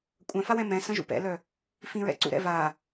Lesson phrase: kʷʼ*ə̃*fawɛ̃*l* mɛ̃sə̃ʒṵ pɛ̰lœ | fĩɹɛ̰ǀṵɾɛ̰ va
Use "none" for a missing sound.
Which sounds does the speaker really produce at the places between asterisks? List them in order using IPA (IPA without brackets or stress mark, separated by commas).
œ̃, none